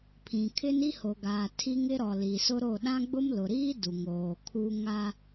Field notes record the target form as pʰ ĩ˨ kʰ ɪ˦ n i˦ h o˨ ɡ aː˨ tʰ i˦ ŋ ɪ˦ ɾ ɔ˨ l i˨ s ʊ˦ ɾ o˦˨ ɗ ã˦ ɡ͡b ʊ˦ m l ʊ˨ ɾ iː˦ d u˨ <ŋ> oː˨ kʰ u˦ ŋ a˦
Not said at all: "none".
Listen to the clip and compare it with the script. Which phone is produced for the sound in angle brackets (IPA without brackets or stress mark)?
ŋ